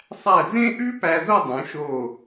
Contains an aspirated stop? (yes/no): no